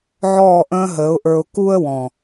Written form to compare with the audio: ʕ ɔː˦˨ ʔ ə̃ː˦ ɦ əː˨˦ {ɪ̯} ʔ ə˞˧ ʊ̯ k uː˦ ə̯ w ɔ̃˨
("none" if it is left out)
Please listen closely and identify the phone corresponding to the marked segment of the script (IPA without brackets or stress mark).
ʊ̯